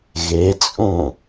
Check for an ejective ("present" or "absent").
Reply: present